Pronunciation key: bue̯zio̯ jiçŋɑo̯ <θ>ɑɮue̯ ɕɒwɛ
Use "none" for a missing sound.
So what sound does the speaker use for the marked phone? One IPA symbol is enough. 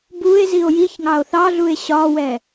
θ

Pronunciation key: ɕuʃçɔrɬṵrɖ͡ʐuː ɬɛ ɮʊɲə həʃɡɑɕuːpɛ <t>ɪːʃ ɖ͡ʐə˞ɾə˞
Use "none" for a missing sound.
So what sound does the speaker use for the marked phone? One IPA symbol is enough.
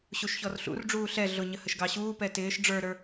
t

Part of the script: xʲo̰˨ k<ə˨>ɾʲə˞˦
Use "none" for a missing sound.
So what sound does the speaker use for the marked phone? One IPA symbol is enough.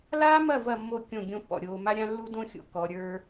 ɔ˨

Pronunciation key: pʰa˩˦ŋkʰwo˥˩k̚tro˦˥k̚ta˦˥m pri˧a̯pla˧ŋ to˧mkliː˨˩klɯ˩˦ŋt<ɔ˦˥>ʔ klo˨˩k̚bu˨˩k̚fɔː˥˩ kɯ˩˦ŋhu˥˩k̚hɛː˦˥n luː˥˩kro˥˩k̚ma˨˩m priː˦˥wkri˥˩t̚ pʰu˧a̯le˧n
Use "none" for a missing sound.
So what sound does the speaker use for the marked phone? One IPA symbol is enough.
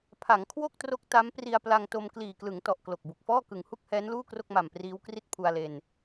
ɔ˨˩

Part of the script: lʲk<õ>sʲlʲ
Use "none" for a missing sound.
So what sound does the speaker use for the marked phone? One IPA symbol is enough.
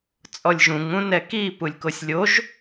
o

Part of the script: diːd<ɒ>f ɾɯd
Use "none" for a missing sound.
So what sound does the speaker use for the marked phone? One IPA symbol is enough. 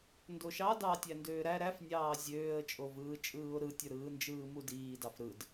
ɑ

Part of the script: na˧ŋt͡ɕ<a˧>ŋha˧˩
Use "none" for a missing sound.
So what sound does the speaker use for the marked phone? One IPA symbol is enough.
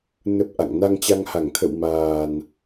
a˧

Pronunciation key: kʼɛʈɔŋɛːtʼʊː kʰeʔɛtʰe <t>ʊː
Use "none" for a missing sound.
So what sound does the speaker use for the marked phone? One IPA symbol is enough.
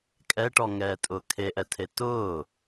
t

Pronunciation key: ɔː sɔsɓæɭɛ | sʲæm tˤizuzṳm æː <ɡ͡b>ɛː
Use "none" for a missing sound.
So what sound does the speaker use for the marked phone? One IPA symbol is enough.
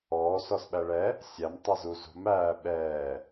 ɓ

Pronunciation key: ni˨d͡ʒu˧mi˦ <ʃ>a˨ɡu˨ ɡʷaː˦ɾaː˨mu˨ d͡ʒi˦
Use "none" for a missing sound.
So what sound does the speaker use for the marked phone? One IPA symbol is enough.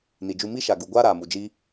ʃ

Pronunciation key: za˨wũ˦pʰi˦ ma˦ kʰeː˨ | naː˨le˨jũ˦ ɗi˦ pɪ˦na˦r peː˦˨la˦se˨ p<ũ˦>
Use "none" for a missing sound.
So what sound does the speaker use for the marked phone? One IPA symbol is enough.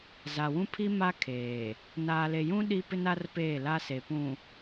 ũ˨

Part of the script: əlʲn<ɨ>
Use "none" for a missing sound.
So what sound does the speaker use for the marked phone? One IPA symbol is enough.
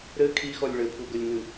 ɨ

